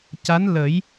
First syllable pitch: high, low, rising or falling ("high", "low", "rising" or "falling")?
rising